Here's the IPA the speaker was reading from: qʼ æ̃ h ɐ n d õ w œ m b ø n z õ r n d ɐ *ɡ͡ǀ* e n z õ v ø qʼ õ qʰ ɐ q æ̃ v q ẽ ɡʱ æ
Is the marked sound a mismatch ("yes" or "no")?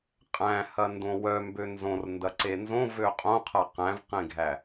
yes